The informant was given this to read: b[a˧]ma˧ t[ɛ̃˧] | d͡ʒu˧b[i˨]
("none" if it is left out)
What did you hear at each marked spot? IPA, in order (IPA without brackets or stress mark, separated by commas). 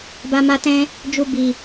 a˧, ɛ̃˧, i˨